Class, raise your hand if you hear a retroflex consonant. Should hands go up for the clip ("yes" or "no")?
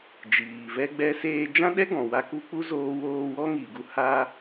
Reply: no